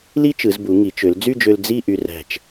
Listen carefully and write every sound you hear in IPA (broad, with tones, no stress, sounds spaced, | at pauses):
l i˥ t͡ʃ ɯ˩˧ z b u˩˧ ŋ i˩˧ t͡ʃ ø˩˧ l d͡z y˥˧ d͡ʒ ø˧ l d͡z i˥˧ ʔ y˧ r æ̤˧˩ t͡ʃ